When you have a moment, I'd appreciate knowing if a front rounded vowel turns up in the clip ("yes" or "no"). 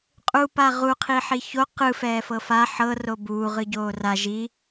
no